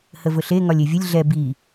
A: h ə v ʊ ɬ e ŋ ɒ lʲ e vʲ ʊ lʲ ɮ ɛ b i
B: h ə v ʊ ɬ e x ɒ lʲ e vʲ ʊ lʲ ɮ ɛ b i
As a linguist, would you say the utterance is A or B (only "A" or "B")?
A